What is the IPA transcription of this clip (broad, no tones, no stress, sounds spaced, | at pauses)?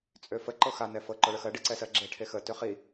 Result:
t͡sʼ ø f ə ǃ ɤ x a n ɛ f ɤ ǃ ɔ ɭ ə x ɜ ɖ i ǀ ɛ s ɜ ɡ͡ǁ e ʈʰ e x ə t ø χ i